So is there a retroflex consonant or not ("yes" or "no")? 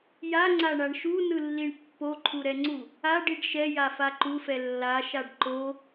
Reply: yes